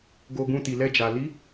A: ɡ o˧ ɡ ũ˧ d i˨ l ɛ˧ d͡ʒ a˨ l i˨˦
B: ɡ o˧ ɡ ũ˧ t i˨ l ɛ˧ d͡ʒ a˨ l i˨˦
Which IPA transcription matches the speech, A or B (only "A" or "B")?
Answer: B